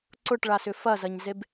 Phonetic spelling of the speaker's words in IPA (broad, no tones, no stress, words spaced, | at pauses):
ǀʊʈɭasʏ fɐzɐɲzeb